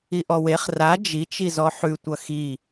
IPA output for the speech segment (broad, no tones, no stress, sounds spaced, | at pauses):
i ʔ ɔ w e χ r a d͡ʒ i t͡ʃ i z ɔ ħ ʉ tʷ ʌ x i